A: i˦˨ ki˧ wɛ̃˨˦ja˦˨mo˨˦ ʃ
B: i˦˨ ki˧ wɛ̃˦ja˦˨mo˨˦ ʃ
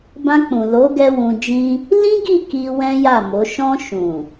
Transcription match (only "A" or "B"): B